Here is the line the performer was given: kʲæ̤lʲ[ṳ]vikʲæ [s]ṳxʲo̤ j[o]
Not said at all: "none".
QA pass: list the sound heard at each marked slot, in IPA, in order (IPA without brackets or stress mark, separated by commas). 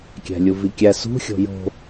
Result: u, s, o̤